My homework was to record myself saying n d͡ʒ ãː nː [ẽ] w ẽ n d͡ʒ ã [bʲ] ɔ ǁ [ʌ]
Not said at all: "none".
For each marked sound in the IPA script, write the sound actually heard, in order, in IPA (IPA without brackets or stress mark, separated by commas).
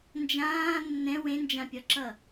ɛ̃, pʲ, ʌ